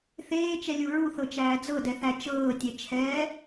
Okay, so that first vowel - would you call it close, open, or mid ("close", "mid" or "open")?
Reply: mid